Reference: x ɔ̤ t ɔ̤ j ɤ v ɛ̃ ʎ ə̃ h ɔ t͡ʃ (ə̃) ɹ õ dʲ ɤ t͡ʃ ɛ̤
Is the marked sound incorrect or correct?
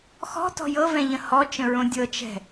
correct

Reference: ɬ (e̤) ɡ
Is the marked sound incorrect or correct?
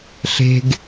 correct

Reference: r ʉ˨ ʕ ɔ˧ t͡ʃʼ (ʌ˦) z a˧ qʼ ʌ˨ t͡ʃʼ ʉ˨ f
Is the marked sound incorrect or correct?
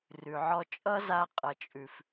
correct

